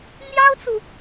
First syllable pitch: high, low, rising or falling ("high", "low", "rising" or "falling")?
high